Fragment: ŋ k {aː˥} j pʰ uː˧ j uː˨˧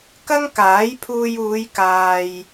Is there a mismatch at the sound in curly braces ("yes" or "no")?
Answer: yes